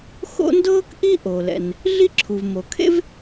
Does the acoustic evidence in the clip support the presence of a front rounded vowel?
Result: no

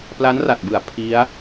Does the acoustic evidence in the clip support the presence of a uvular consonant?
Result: no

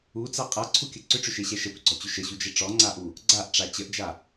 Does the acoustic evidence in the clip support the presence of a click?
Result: yes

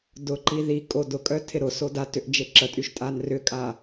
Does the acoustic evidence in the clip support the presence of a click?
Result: yes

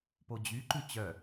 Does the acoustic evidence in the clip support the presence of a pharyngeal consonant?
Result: no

